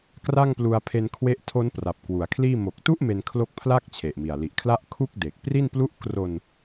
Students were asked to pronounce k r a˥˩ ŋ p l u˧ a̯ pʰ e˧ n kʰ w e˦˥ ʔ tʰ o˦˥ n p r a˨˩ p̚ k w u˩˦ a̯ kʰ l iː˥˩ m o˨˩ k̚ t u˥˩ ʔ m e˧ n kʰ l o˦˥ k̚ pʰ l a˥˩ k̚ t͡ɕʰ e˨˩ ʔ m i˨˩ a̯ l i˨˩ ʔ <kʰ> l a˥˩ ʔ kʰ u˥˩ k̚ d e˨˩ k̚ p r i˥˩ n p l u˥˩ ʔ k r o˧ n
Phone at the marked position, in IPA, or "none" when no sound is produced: kʰ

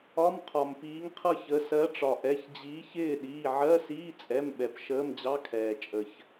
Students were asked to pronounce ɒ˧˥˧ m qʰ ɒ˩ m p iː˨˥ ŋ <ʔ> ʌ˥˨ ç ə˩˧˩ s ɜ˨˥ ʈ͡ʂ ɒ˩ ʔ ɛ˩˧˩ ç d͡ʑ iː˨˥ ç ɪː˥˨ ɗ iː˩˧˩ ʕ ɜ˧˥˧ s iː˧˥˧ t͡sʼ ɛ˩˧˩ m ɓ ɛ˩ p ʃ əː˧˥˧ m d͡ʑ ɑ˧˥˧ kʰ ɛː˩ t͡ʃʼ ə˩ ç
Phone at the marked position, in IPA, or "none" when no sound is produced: qʰ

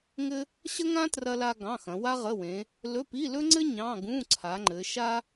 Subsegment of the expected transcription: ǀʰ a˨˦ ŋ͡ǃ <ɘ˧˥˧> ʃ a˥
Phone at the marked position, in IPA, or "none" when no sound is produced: ɘ˨˦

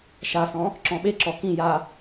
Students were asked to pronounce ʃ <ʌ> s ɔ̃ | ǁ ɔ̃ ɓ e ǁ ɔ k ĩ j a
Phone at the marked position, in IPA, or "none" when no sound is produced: a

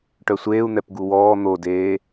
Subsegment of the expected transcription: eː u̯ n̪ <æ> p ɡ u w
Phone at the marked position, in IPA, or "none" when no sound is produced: ɛ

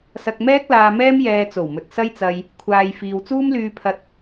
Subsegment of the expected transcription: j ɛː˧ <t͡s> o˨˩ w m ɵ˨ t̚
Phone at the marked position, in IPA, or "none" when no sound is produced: t͡s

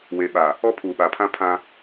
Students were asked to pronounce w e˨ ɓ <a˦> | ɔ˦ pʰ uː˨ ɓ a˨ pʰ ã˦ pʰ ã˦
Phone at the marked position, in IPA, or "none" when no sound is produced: a˨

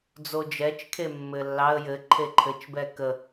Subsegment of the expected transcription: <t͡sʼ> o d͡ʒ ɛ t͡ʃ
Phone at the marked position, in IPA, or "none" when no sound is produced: d͡z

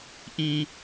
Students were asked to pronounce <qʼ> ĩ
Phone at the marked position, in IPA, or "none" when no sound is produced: ʔ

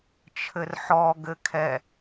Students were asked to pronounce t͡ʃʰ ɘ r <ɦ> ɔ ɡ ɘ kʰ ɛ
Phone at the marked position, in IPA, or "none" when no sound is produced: ħ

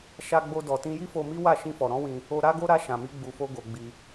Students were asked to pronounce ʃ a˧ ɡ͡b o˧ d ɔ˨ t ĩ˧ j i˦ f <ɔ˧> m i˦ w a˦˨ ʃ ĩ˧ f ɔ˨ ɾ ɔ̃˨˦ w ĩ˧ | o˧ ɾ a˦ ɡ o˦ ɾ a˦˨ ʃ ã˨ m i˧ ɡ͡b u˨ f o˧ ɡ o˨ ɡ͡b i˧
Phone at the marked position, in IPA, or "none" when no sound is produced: o˧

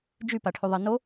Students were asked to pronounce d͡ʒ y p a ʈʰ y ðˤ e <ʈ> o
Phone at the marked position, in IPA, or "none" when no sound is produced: n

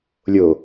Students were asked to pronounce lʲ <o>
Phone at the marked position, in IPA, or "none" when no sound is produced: o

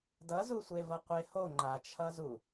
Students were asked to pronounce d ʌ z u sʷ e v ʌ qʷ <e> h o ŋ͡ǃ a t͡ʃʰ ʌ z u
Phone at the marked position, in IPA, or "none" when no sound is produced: e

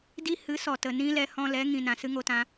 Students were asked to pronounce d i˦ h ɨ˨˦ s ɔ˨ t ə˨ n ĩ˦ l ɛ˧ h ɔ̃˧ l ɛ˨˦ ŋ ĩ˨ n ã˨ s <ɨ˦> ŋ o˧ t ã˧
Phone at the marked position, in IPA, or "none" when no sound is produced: ɨ˦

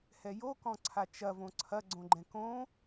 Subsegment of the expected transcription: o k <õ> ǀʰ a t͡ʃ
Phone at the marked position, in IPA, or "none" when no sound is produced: ɔ̃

